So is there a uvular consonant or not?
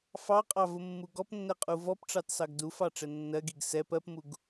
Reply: yes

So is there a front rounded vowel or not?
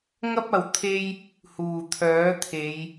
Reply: yes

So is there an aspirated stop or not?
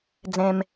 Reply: no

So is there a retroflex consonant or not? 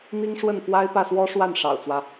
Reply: yes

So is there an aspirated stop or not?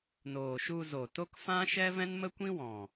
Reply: no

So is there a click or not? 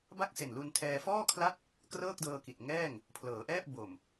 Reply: no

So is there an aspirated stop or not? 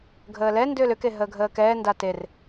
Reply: no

